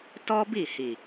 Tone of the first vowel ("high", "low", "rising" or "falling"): high